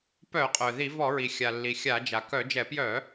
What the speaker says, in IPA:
p œ˧˩˧ qʼ œ˩ ð i˧˩˧ v ɔ˧˩˧ ɹ i˩ xʲ a˩ lː i˩ xʲ a˧˩˧ d͡ʒ a˩ k œ˧˩˧ d͡ʒ ɛ˧˩˧ p j œ˧˩˧

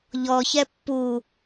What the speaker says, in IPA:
ʎ ɔ ç ɛ pː u

